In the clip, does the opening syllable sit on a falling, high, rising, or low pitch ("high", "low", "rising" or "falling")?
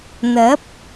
rising